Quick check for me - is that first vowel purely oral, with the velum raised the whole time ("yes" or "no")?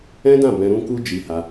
no